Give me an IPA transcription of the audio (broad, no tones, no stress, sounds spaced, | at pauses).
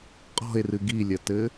qʼ ɔ̤ e̯ r ɨ ɡ i lʲ ɐ t ɘ